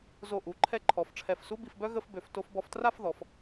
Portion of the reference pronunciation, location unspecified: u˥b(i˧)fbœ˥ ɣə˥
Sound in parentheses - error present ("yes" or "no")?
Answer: no